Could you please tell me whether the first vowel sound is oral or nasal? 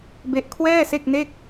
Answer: oral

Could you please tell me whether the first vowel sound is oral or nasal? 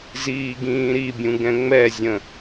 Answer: oral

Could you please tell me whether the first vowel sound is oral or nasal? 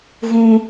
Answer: nasal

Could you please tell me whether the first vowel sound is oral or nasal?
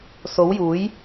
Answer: oral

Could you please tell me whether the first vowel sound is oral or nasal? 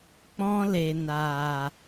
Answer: nasal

